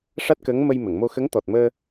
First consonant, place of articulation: retroflex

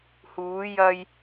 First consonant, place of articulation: glottal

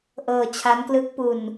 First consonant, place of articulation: glottal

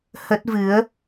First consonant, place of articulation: glottal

